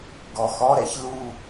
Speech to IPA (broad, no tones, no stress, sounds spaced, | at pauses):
ɡ ɔ x ɔ ɾ ɛ ç l u